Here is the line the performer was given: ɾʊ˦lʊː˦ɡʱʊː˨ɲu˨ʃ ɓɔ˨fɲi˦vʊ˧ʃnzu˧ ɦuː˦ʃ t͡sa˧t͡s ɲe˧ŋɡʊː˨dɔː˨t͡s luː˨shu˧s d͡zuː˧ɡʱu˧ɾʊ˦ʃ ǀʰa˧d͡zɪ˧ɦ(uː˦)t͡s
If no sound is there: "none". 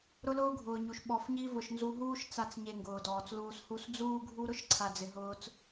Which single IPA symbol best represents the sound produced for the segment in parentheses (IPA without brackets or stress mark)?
ʊː˦